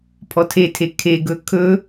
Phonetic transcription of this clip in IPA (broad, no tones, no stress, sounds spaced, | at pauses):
pʰ ɔ tʰ e tʰ e kʰ e ɡ ɵ kʰ ɵ